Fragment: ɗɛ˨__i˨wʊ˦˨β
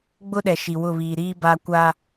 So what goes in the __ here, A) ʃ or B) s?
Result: A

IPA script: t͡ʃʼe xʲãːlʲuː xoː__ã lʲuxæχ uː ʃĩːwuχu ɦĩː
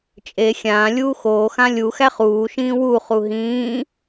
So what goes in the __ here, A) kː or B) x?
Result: B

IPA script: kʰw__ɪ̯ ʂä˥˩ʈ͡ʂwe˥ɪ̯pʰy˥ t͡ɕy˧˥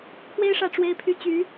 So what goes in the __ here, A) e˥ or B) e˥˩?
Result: A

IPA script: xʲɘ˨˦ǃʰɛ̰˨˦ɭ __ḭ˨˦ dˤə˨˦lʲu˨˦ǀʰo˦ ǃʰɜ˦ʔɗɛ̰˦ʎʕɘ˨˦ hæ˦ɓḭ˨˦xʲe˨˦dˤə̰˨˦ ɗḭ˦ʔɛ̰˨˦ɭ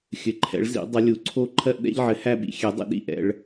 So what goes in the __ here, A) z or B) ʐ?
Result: A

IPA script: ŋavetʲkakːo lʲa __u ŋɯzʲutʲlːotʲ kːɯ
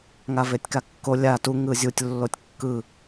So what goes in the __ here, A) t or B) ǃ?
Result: A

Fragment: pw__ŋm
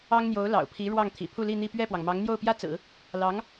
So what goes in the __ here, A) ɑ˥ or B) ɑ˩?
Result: B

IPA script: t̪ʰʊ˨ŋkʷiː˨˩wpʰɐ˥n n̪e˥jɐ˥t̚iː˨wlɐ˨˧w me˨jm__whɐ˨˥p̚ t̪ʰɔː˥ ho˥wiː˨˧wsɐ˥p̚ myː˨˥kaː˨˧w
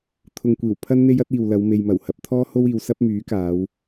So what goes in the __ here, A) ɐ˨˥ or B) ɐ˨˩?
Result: B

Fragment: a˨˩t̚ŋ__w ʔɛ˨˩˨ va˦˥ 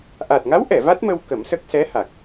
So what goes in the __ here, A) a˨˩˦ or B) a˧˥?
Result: B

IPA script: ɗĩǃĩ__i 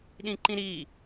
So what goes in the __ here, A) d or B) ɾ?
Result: B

